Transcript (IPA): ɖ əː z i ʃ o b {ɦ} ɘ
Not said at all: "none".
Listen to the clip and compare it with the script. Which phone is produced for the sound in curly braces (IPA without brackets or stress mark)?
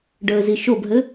ɦ